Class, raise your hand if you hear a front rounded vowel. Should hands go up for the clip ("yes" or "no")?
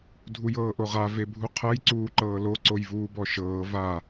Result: no